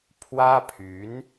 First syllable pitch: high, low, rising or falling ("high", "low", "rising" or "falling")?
high